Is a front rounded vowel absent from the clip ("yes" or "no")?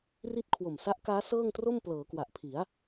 yes